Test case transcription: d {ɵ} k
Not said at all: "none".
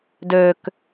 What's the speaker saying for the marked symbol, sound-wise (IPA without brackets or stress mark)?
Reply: ø